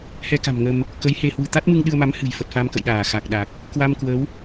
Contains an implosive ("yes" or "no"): yes